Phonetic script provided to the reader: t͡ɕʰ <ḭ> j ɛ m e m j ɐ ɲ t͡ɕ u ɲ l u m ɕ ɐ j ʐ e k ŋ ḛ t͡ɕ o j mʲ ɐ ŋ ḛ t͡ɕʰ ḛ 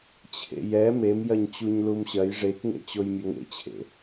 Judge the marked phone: incorrect: ḛ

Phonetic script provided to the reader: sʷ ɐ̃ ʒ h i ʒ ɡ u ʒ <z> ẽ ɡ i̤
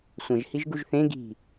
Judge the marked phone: incorrect: θ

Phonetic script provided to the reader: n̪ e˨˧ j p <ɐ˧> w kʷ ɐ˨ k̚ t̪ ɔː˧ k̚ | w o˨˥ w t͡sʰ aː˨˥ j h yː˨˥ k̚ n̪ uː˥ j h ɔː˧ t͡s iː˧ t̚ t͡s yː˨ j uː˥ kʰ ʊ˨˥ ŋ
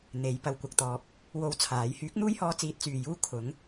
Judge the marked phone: correct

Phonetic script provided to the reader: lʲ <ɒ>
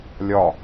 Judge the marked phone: correct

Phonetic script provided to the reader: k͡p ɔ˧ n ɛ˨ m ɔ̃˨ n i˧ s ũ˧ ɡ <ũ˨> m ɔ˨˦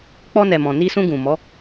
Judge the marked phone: correct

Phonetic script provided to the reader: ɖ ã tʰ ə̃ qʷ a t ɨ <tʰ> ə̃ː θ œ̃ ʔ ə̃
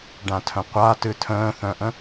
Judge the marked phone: correct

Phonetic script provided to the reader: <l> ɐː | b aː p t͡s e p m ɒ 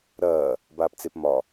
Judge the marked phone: incorrect: ɾ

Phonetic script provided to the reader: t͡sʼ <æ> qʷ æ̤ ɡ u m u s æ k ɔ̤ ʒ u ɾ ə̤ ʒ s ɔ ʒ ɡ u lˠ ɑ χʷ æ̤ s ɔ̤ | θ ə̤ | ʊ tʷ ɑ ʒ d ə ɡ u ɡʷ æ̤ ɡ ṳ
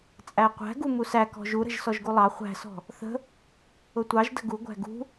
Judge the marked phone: correct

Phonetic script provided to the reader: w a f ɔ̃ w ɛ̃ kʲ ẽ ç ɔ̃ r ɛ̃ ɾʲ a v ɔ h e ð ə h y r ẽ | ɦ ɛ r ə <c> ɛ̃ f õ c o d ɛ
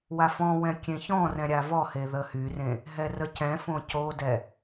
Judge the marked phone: correct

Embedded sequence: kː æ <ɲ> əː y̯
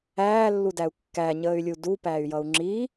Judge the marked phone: correct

